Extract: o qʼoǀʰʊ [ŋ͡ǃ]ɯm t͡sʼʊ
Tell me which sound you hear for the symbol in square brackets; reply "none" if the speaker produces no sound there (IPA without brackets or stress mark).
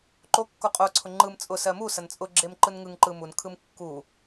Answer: ŋ͡ǃ